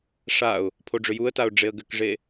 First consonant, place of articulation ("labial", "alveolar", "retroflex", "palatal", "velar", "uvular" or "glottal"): retroflex